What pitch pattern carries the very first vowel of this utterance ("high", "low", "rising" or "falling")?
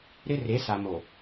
high